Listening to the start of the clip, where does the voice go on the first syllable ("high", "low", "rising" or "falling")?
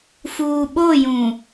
low